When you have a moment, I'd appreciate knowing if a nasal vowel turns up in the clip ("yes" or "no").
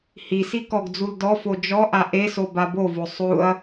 no